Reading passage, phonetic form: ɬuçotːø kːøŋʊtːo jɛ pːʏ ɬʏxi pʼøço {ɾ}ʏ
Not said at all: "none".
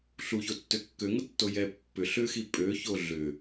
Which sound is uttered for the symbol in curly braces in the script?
ɮ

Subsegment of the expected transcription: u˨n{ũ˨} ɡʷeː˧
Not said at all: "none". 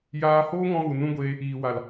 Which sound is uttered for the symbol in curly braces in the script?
ũ˧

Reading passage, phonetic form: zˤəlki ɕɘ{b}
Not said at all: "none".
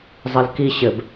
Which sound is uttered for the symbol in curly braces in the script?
b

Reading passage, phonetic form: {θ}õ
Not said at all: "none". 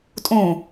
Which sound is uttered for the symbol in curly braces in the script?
tʼ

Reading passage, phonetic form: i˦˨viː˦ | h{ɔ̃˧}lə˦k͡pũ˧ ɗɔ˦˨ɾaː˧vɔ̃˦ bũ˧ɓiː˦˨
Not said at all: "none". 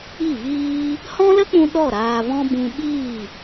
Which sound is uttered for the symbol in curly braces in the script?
ɔ̃˦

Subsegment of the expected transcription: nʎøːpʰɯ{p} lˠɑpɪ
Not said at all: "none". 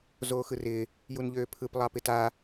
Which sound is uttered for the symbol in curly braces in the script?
p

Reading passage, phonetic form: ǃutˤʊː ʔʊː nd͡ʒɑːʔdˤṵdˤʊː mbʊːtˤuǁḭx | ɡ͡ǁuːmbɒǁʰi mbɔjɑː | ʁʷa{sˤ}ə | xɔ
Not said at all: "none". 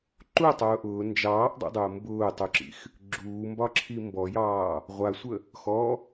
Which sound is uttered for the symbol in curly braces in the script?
sʷ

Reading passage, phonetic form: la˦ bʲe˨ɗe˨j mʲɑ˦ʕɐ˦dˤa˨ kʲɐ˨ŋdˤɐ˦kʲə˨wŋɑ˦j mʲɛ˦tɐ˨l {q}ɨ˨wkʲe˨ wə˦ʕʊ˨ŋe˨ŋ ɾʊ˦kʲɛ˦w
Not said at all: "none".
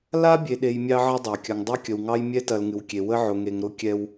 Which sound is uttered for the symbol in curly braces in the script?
ŋ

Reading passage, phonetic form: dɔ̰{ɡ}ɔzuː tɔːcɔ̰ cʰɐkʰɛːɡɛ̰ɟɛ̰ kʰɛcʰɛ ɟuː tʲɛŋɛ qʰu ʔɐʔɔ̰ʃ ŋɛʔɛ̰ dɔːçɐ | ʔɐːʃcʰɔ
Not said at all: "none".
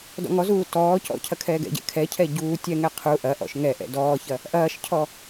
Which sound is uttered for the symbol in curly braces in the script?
ŋ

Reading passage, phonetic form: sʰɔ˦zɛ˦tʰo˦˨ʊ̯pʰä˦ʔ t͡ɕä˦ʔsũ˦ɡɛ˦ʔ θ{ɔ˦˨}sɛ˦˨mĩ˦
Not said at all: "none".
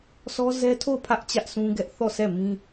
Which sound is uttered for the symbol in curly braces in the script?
ɔ˦˨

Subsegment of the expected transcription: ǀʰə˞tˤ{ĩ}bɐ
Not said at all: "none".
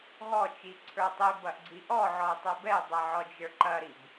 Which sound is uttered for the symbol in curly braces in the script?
i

